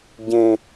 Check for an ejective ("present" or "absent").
absent